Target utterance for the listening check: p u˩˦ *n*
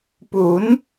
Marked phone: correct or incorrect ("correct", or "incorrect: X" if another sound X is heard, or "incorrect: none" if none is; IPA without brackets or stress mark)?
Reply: correct